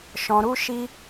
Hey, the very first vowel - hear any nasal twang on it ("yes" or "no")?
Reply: yes